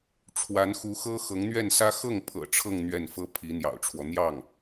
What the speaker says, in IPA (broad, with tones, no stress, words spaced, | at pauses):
ʈ͡ʂʰwa˧˥nxu˧˥xɤ˥ xɤ˧˥ŋn̪ɥɛ˥˩nsä˥ xɤ˥˩ŋpʰɤ̰˨˩ ʈ͡ʂʰɤ˥˧ŋ n̪ɥɛ˥˩nfɤ˥ pʰi˧˥n̪jɑ̰˨˩ʊ̯ʈ͡ʂʰwɔ˦ n̪jɑ˥˩ŋ